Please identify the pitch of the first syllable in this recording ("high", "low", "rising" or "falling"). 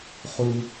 low